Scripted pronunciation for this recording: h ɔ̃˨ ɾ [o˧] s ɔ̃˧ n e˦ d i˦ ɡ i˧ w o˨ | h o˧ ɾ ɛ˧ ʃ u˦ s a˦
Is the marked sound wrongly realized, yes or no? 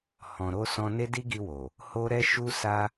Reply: no